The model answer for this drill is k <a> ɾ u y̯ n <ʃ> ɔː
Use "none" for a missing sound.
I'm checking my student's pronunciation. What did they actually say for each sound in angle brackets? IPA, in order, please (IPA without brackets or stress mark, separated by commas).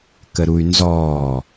ə, z